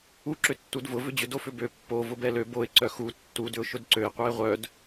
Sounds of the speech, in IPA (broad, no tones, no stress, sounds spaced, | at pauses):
u ǁ ʏ tː u d v ʊ v ʏ d͡ʑ ʏ d o f ʏ b ø pː o v ʊ b ɛ l ø b o ɪ̯ ǀ œ x u tː u d ʏ ʊ̯ ʃ ʊ d ǀ ø ɪ̯ qʷ œ ɪ̯ ʁʷ œ d